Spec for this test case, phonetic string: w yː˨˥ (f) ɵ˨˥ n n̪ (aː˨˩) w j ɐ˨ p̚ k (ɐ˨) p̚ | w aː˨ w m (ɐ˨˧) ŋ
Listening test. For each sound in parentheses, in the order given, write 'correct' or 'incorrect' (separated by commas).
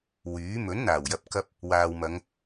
incorrect, correct, incorrect, correct